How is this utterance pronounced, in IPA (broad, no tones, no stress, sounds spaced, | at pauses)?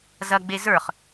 z ɐ ɡ͡b e z ə˞ χ